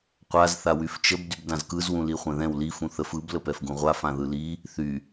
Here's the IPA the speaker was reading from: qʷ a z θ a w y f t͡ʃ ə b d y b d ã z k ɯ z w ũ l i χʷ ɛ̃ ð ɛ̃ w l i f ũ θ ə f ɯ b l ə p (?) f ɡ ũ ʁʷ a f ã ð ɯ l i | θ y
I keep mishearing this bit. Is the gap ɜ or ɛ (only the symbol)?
ɛ